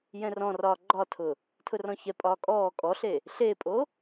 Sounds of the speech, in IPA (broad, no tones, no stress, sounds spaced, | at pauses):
j ɛ̃ r ɔ̃ r ɒː ɡ͡ǃ ɒ tʰ ʊ | tʰ ʊ r ɔ̃ ç ɛ pʼ ɒː kʼ ɔː kʼ ɔ ɬ e | ɬ e pʼ o